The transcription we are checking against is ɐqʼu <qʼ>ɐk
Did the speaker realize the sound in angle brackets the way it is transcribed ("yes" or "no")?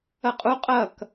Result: yes